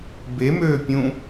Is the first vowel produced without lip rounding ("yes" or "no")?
yes